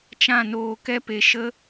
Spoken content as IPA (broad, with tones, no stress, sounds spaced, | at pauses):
t͡ʃ ã˦˨ n oː˧ k ɛ˦ p e˧ ʃ ə˦